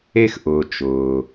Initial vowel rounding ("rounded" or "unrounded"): unrounded